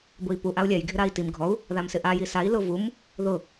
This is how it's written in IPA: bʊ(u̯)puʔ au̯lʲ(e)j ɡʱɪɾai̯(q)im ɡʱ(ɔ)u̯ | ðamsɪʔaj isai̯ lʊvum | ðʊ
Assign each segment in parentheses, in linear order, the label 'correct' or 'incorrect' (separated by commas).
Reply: incorrect, incorrect, incorrect, correct